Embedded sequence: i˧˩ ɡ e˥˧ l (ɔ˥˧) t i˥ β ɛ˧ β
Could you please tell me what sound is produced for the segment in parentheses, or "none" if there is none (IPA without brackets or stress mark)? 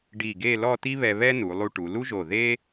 ɔ˥˧